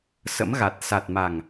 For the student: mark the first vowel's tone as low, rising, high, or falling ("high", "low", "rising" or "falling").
rising